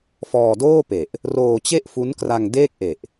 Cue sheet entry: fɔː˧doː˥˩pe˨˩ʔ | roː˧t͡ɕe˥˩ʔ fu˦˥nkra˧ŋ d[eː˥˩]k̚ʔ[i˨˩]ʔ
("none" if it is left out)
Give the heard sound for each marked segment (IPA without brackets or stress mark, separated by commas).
eː˥˩, e˨˩